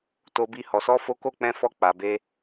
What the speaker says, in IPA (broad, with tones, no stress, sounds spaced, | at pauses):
t o˧ b i˧ h ɔ˧ s ɔ˦ f o˦ k o˦˨ k͡p ɛ̃˧ f ɔ˧ k͡p a˨ b e˧